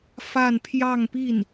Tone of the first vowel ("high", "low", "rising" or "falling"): falling